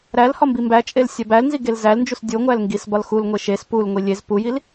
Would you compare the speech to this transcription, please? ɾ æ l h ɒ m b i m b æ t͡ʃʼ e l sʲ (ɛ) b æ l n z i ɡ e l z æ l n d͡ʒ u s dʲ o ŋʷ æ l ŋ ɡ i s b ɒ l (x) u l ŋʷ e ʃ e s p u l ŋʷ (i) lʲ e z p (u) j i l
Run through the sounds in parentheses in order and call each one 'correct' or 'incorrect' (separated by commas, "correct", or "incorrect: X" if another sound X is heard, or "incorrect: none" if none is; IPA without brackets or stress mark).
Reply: incorrect: æ, correct, correct, correct